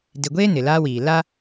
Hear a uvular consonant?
no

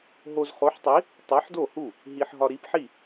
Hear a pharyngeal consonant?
yes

